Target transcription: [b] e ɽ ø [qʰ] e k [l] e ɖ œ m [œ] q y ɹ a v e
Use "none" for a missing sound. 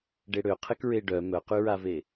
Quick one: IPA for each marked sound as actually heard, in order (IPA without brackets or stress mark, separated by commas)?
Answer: ɖ, qʰ, ɹ, œ